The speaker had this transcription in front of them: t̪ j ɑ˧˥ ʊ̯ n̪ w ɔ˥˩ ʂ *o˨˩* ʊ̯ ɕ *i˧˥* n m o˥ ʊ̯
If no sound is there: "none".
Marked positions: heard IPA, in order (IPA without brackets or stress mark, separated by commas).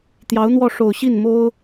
o˨˩, i˥˩